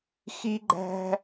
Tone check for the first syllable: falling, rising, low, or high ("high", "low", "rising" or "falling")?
high